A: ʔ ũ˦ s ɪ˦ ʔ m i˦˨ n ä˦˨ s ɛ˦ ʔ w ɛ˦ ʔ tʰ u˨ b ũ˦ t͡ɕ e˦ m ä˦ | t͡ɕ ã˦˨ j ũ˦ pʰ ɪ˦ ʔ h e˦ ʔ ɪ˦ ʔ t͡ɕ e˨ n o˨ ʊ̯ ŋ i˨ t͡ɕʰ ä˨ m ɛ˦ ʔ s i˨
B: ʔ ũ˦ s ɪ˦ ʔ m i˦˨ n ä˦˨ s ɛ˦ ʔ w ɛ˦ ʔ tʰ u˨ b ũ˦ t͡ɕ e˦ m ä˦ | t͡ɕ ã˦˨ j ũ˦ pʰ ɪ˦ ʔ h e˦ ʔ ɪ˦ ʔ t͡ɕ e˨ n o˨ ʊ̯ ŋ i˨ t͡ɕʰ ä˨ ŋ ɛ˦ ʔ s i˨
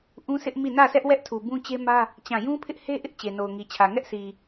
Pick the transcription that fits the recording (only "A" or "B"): B